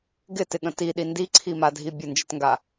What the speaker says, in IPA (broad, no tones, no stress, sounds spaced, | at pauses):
ɡ ɪ t ɪ ɠ ə̃ t i ɗ i n d i ǀʰ i m a dʱ i bʲ ə n d͡ʒ ə t ŋ ɡ a